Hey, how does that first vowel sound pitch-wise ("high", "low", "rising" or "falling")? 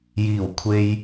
low